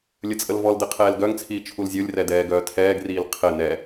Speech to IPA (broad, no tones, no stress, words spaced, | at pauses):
lʲət͡sʼəlvɔldɘ qʰɛːlɡœŋt͡sʰiː t͡ʃʰulzʲolʲrɛ dɛːɡœːtʰɛːɡriːl qʰɘ nɛ